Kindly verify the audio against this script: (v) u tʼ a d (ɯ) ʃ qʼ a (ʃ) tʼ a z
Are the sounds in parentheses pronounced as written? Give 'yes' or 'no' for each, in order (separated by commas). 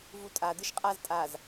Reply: yes, yes, no